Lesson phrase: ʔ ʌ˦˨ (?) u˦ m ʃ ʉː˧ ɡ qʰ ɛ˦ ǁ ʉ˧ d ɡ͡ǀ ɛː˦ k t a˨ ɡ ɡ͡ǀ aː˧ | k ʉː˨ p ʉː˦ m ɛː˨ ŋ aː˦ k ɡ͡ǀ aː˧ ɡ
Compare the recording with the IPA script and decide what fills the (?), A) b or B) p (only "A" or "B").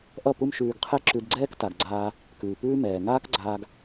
B